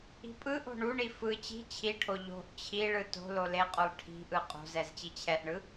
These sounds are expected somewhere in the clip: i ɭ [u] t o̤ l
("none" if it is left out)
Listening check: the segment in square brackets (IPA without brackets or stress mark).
ɯ